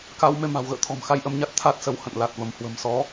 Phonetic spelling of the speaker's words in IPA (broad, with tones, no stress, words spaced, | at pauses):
ka˧w me˧ma̤˨˩wɣə̰ː˧˨t̪ʰɔ̤˨˩m xa˧jʔə˧mɲa˦˥t̚ t̪ʰa˦˥t̚sə˧w hə̰˧˨n la˨˩t̚və˧˩mhwə̤˨˩m sɔ˨˦